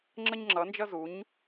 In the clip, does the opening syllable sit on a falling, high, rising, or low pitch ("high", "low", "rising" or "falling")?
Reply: high